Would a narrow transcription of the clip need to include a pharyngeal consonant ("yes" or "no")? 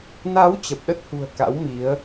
no